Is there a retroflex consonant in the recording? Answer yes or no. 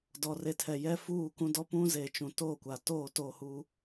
no